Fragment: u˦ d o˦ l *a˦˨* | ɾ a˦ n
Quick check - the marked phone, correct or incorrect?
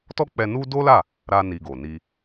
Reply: correct